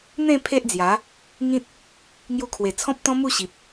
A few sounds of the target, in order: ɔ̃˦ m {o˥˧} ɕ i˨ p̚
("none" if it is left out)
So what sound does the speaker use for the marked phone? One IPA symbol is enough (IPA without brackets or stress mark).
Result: u˥˧